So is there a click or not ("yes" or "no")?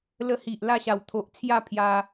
no